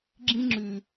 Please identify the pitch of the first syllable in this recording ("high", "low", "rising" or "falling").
high